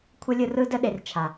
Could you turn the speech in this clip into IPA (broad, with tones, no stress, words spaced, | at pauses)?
kʷʰə˦ lʲɯ˧rɯ˦də˦ ɗe˧r t͡ʃʰa˨